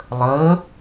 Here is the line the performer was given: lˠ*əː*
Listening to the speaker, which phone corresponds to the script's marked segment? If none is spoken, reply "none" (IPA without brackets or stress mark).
əː